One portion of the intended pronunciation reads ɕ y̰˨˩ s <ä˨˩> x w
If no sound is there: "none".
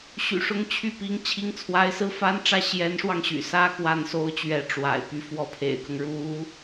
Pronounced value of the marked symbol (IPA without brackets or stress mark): ä˥